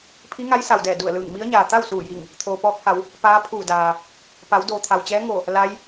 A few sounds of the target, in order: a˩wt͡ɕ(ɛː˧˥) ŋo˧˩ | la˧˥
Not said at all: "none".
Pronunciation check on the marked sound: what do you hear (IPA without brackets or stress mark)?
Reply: ɛː˧˥